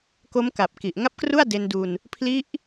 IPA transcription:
k o˦˥ m k a˨˩ p̚ k i˨˩ ʔ ŋ a˦˥ p̚ k r u˥˩ a̯ d e˧ n d u˧ n | pʰ l i˦˥ ʔ

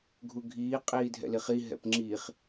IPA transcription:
ɡʱ u ɡʱ iː qʼ iː dʱ ɛ̰ l i χ i ɦ ɛ̰ p ŋ͡ǁ iː χ

